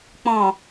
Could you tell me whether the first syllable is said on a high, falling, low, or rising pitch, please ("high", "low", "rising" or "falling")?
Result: low